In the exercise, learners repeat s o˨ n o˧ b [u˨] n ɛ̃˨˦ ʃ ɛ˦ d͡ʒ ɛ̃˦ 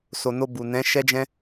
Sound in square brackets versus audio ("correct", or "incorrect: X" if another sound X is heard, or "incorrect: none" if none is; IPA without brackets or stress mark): correct